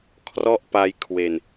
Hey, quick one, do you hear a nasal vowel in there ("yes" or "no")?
no